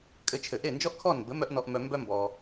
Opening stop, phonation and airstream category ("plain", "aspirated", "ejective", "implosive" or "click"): ejective